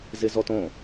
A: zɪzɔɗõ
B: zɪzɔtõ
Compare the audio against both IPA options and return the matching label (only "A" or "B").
B